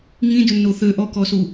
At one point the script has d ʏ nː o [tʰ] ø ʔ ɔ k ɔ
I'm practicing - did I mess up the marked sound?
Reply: yes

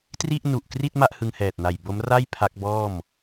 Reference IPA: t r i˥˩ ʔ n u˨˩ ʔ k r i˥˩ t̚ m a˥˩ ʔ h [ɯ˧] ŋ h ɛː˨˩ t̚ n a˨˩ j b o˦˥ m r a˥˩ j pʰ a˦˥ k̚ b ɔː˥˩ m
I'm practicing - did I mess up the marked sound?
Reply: no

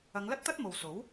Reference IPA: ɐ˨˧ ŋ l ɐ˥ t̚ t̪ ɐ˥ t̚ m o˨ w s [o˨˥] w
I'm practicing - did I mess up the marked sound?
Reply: no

